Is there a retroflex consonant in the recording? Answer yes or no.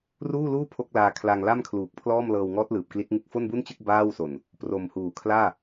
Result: no